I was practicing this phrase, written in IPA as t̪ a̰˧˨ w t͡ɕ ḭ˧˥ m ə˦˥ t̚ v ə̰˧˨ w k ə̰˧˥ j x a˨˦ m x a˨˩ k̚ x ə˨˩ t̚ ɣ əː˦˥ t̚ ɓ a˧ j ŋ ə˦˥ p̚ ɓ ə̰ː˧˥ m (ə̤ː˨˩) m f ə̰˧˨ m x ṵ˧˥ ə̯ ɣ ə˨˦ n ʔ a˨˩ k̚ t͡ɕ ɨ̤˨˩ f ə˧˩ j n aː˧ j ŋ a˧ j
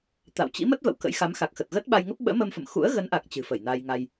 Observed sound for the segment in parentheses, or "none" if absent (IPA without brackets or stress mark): əː˧